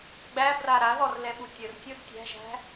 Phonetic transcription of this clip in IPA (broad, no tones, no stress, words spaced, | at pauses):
ɡ͡bæbra ɾaðɔrlɛɓu tʲərtʲod tʲæ̤ʒæ̤